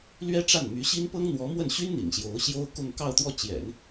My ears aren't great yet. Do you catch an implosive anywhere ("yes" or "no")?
no